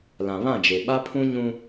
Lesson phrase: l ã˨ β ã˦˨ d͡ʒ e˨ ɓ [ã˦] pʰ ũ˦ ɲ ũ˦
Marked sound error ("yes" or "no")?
yes